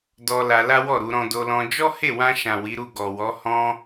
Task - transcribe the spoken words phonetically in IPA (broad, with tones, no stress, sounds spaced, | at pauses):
d ɔ˧ l a˧ l a˦ w ɔ˦˨ ɾ u˧ ɾ ɔ̃˧ d o˧ l ɔ̃˧ d͡ʒ ɔ˦ h e˦˨ w ã˧ ʃ ã˨ w i˨˦ ɾ u˦˨ ɡ ɔ˨ w ɔ˨˦ h ɔ̃˦